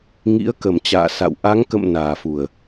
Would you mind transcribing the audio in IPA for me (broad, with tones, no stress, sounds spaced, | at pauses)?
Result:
ŋ ḭ˧˥ ə̯ k ə˨˩ m t͡ɕ a̰ː˧˨ s a̰˧˨ w ʔ a˨˦ ŋ k ə̰˧˨ m n aː˨˩ f u˨˩ ə̯